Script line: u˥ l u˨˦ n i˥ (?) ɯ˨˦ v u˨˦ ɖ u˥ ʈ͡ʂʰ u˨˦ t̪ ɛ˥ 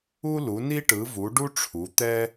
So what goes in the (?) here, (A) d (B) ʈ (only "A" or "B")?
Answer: B